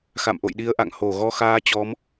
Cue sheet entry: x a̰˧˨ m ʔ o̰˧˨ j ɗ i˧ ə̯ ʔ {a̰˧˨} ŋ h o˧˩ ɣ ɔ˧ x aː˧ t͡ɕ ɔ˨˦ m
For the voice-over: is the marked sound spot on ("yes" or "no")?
yes